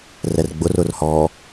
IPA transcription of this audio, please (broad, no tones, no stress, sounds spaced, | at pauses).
r ɛ r ɡ͡b ʊ r ʊ r h ɔ